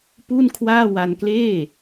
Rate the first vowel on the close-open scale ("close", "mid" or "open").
close